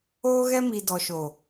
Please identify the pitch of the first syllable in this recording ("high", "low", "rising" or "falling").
high